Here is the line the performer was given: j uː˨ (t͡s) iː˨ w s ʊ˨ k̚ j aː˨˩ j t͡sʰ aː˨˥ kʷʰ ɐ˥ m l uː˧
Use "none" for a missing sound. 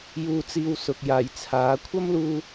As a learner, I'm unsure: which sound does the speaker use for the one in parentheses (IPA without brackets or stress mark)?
t͡s